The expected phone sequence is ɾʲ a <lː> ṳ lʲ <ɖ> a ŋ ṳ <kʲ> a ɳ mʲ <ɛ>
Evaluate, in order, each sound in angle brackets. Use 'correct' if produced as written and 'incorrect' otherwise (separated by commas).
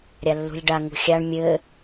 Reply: correct, correct, incorrect, incorrect